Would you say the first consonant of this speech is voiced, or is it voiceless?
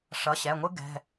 voiceless